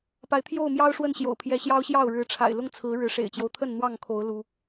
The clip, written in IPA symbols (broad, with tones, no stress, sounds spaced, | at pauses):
p a˨˦ ɪ̯ t̪ʰ j o˥˨ ʊ̯ m j ɑ˦ ʊ̯ ʂ w ə˥˨ n ɕ j o̰˨˩ ʊ̯ pʰ j ɛ˨˦ ɕ j ɑ˦ ʊ̯ ɕ j ɑ˥˨ ʊ̯ ɻ ɻ̩˨˦ ʈ͡ʂʰ a̰˨˩ ɪ̯ l ʊ˦ ŋ t͡sʰ ɹ̩˨˦ ɻ ɻ̩˨˦ ʂ ḛ˨˩ ɪ̯ t͡ɕ j o˦ ʊ̯ t̪ʰ ə˥˨ n n̪ w ɑ˥˨ ŋ kʰ o˨˦ ʊ̯ l u˦